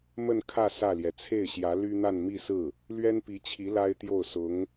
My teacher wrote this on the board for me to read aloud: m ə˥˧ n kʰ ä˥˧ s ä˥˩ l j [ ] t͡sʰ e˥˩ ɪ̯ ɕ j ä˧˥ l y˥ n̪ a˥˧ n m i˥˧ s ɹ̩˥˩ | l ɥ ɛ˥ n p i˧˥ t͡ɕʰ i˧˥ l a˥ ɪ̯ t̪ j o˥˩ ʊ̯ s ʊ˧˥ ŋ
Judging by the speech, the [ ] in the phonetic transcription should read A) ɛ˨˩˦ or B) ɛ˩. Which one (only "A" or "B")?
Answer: B